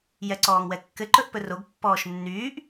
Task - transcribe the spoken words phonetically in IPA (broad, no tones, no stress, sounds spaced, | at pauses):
j ɛ ǀ ɔː ŋ w ɛ kː ɘ ǃ ɵ ʔ p ɵ r o ɡ pː ɔː ʃ nː yː ʔ